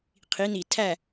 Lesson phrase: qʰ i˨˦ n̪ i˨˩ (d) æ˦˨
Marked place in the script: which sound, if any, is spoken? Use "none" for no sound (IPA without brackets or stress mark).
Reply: tʰ